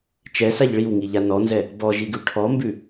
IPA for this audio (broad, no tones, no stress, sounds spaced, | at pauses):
t͡ʃ ɛ s a ʎ ɭ i w ŋ i ʎ a n ɔ n z ɛ | b ɔ ʒ i ɡ ʉ ʈʰ ɔ m b ʉ